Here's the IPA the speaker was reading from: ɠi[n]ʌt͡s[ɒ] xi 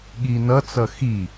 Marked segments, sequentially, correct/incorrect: correct, incorrect

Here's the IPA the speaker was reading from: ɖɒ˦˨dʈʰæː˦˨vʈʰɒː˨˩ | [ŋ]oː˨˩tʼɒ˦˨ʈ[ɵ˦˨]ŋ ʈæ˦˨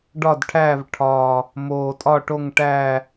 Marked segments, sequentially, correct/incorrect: incorrect, incorrect

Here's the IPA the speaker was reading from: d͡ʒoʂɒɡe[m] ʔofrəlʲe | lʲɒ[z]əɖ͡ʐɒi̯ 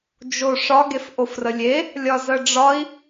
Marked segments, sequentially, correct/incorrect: incorrect, correct

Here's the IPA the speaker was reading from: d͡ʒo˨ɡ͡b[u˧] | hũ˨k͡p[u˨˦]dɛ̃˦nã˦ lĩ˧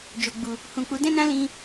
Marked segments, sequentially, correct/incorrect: incorrect, correct

